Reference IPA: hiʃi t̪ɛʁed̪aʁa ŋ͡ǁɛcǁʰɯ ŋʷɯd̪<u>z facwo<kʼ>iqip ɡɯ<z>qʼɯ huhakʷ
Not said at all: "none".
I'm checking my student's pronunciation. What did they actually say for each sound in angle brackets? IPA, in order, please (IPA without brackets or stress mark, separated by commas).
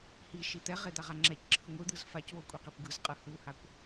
ɯ, kʷʼ, z